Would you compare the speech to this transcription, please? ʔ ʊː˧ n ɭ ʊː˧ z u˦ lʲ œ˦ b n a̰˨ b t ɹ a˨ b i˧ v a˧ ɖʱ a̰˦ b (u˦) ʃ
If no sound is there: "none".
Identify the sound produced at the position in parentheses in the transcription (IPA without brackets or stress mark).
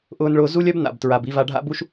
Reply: u˦